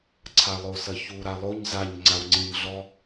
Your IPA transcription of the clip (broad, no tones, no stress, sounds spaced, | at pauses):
ǀʰ a lˠ o s ɐ ç u ɾ a lˠ o ɲ z a ɲ ŋ͡ǀ a w ŋ͡ǀ ĩ ɲ ɮ ɔ